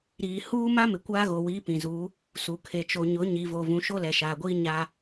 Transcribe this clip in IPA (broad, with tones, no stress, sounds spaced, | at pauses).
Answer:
ɾ iː˨ h uː˦ m a˦ m ɪ˨ kʷ aː˦ ɣ o˨ w iː˨˦ p ĩ˨ z uː˨˦ | s u˨ kʰ e˨ t͡ʃ o˨ ɲ ʊ˨˦ ɲ i˨ v o˨ v ũ˨ ʃ o˦ l ɛ˨ ʃ aː˨ ɡʷ iː˦ ɲ aː˦